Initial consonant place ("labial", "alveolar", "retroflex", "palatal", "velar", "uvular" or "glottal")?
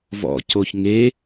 labial